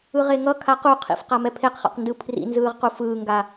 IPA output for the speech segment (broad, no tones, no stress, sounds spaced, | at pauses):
ɯ ʁ e ŋ ʌ kʰ a q u qʰ ḭ f q a m ɛ pʰ e q χ a̰ q n d ɯ pʰ r ḭ n z ɯː ʁ q u f ɯː ŋ ɡ a